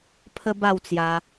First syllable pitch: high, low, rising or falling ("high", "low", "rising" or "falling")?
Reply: high